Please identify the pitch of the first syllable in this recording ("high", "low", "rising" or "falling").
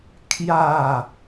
falling